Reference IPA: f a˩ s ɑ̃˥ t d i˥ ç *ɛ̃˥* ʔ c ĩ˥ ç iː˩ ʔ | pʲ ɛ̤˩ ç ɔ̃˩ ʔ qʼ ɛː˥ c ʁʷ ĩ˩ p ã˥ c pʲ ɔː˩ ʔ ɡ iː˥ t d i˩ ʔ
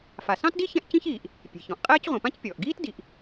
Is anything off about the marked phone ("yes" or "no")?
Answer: no